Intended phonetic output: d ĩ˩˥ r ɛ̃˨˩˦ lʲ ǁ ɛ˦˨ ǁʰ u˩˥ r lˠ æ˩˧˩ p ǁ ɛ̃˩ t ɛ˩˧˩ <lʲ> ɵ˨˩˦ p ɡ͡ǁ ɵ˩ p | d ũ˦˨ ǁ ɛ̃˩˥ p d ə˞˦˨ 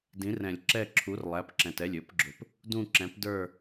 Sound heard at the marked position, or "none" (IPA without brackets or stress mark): lʲ